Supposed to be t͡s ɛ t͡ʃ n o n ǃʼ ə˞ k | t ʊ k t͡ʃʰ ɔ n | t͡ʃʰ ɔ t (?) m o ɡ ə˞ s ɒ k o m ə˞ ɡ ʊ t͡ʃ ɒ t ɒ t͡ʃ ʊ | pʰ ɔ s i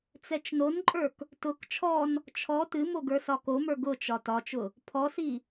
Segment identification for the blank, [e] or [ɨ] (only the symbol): ɨ